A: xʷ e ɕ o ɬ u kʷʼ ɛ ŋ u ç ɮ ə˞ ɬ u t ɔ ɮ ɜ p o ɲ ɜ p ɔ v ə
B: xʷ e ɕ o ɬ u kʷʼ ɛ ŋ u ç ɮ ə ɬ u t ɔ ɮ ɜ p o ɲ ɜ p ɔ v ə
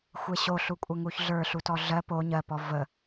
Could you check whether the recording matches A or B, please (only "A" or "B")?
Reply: A